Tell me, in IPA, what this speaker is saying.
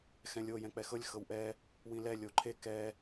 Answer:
xɛ̃lʲo jɛ̃k͡pɛxɤlʲ xɤwʔɛ | wĩlɛ lʲoǃʰe kɛ

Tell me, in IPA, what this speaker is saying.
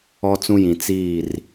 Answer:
ɔ˦t͡sũ˦jĩ˨ t͡siː˦˨r

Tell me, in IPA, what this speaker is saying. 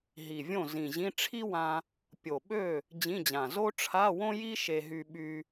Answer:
ɦi˨˩vʲõ˥˩zĩ˨˩ʑĩ˧˥˧ ʈ͡ʂʰi˥wã˧ | pʲo˨˩ɓø˥˩ | d͡ʑĩ˧˥˧d͡ʑã˨˩ zo˥ʈ͡ʂʰa˧˥˧wõ˥ji˥ ʃe˧ɦy˧ɓy˧

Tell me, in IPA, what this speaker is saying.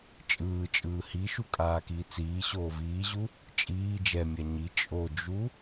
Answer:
t͡ʃʼɯːt͡ʃʼɯː hiʃu kʼaːkiːt͡siːɕoː viːʑu | t͡ʃʼiː d͡ʒɛmʲa ɲi t͡ʃʼod͡ʒu

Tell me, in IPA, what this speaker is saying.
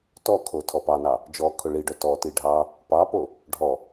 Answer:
tɔkʰo tʰɔpɑnɑ | d͡ʒɔkʰʊ ɭiɖœ tɔti ɖʱɑ | pɑpo | ɖʱɔ

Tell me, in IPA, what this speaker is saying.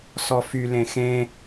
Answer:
sɔfy lẽxẽ

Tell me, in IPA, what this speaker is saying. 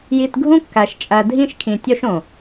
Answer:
ji˧tɡʱũ˦kːæ˨ʃ t͡ʃʼæ˨ dʱĩ˦ʃkʰĩ˨tʲo˦ʃõ˨

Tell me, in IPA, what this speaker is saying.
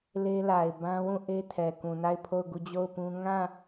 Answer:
le˦la˨ɪ̯ bã˦wũ˦˨ʔe˦ tʰɛ˨ kũ˨na˦˨ɪ̯pʰo˦˨ʊ̯ɡu˦˨ d͡ʑo˦˨ʊ̯pũ˦ ŋã˦˨

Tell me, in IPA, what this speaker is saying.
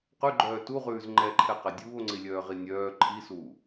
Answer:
qʉɡ͡ǃœː tuʁʉːz ŋ͡ǃɛǃʰɛqɛ dʲuːo̯ŋ͡ǀilʲœːʁi nʲœː ǃʰisuː

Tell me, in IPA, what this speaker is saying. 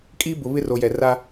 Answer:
kʼiː˦bʊ˨βɪ˦ ro˨jɛ˨ra˦

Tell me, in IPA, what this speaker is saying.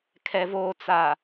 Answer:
kʰɛ˨voː˨ t͡sa˨

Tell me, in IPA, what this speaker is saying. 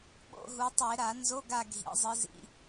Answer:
ɓo̰˧˥˧ɦu˩˧tˤe˧˩˧ ɾa˧˩˧ nzo˧˥˧ɡa˦˨ɡʱḭ˩˧ zˤɨ˩˧zḭ˧˥˧

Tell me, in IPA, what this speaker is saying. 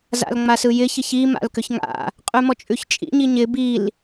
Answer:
za̰lŋ͡masɯjɪ çɪçi ma̰lkʏçŋa̰ | qʼʉmɔt͡ʃʼʉçt͡ʃʼḭ ɲiɲɪ bil

